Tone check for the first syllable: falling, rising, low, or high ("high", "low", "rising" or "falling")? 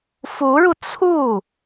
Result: rising